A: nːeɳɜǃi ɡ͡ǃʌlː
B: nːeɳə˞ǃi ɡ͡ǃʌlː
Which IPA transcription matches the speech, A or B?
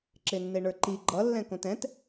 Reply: B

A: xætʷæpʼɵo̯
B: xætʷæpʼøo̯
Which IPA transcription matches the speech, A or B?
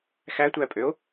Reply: B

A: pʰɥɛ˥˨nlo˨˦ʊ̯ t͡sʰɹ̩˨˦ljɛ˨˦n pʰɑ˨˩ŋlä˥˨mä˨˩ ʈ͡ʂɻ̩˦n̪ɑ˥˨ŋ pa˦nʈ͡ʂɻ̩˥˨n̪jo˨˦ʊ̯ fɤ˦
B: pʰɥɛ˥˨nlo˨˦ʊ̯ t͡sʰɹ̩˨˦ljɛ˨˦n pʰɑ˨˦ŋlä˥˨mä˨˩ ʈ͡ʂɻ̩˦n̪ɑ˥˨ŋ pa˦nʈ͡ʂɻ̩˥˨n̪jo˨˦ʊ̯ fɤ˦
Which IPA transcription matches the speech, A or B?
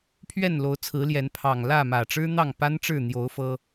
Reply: A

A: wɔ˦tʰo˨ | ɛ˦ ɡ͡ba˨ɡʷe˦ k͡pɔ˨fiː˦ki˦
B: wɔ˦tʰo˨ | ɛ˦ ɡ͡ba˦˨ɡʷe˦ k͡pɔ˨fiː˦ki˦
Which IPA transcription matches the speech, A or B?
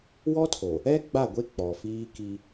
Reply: B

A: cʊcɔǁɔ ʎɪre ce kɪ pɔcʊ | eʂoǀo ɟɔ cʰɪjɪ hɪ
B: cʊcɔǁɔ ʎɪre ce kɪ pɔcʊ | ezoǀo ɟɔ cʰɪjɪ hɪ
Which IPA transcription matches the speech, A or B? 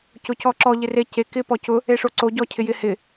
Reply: A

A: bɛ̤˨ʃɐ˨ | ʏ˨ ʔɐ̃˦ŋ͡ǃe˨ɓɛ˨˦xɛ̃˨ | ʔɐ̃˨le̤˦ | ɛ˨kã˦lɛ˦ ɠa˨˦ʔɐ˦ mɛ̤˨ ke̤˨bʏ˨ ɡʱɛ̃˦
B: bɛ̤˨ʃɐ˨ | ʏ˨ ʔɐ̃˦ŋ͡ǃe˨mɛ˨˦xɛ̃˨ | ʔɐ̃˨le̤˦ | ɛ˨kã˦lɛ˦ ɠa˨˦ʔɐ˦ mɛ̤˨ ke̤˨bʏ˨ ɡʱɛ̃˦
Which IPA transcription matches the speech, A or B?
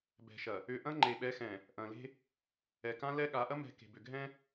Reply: A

